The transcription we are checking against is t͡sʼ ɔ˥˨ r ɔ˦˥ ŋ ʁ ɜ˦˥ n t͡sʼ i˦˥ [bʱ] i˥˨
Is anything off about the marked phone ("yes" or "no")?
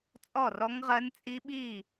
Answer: yes